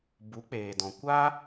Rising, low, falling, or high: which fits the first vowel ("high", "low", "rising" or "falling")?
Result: rising